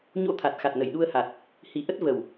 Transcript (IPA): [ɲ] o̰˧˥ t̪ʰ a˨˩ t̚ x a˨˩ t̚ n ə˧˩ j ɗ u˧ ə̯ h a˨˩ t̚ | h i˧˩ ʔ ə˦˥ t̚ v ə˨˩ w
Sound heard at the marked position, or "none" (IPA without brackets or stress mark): ɲ